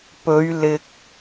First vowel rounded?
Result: yes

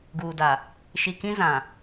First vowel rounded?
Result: yes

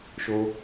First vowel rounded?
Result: yes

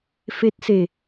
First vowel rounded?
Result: no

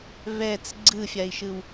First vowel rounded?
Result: no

